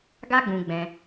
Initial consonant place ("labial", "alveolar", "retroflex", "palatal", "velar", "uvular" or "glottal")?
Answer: velar